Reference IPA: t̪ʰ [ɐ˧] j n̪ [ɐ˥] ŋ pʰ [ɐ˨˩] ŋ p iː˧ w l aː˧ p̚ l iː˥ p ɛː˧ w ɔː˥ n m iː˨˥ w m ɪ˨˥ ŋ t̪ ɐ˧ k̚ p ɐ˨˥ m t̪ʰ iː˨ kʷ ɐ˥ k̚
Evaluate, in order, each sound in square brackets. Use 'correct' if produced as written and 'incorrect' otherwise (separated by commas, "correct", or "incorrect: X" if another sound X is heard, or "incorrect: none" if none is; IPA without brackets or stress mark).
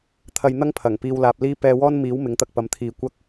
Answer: correct, correct, correct